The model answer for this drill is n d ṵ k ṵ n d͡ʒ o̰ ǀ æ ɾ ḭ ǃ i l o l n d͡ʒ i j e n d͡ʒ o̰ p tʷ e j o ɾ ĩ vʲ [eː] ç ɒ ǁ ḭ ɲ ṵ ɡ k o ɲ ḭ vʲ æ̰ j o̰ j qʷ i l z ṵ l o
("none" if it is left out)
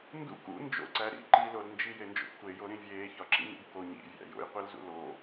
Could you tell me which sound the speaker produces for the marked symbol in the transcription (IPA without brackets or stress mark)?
eː